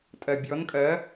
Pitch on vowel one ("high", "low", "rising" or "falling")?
low